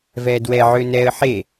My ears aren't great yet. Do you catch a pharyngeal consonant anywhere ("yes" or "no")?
yes